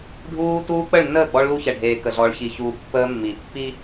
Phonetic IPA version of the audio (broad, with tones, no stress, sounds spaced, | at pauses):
ɖʱ uː˦ t uː˦ k͡p ə˦˨ ɭ nː əː˦˨ ɡ͡b ɔ˦ ɭ l u˦ ç ɛ˨ ɖʱ eː˨ k ə˨ ɮ ɔ˨ ɭ ç i˨ ç uː˨ pː əː˦ mː i˨ pː i˦